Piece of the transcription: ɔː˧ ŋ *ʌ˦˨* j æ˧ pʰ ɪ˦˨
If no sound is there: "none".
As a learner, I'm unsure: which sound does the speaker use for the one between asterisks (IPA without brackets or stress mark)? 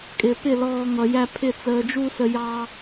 ʌ˨